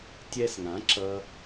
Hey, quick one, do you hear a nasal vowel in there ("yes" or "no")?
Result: yes